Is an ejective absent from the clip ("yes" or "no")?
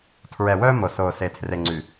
yes